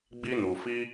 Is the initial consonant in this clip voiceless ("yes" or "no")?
no